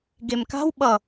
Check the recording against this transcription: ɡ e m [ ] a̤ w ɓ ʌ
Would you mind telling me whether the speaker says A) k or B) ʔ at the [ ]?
A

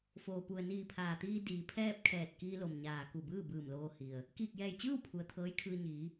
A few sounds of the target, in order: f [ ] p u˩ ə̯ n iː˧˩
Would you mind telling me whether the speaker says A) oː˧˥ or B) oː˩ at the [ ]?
B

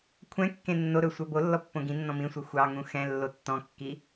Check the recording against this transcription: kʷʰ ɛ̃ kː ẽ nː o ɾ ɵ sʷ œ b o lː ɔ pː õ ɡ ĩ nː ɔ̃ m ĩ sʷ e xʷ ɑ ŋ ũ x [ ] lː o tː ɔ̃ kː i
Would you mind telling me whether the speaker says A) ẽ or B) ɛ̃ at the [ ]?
B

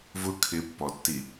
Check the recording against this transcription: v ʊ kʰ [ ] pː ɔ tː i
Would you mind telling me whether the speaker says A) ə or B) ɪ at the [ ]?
B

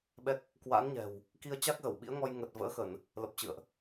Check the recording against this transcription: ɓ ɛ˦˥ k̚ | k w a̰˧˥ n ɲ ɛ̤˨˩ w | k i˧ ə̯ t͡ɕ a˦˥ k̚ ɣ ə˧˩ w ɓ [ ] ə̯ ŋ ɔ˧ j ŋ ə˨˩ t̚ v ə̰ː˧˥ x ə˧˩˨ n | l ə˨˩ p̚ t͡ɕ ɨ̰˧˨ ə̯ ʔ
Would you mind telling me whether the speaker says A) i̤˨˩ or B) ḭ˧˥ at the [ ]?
B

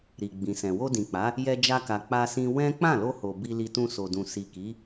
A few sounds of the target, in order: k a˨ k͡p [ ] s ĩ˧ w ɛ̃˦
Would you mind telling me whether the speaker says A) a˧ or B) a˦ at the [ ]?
A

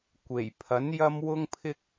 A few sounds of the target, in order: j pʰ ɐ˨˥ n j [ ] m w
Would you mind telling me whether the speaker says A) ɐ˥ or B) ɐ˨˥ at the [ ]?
A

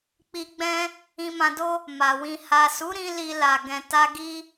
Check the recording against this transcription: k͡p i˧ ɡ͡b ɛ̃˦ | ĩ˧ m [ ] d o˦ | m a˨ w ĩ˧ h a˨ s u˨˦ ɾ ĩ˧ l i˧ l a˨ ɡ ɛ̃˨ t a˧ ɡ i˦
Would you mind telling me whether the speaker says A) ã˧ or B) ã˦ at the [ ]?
A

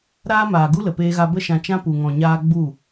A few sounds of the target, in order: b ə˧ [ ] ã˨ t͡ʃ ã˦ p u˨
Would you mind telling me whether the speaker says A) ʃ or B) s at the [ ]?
A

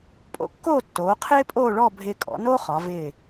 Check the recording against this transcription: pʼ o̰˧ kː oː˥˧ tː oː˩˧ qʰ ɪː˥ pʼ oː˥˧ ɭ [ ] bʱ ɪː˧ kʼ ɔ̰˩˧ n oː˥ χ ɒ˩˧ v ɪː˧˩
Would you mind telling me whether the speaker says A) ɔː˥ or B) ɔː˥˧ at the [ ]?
B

